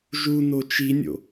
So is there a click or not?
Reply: no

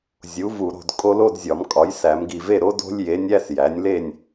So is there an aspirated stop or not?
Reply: no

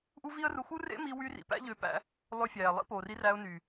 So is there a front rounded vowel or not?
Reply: yes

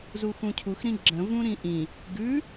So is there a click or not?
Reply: yes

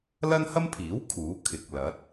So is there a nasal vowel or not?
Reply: no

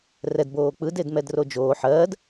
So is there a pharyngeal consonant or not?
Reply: yes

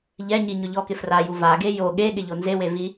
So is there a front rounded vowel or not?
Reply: no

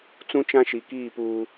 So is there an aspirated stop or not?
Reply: no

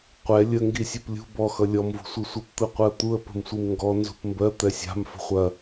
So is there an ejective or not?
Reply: no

